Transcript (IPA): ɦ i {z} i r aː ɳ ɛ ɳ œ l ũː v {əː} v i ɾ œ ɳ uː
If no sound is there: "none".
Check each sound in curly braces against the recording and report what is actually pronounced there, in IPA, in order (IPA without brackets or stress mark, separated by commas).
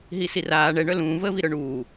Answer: s, əː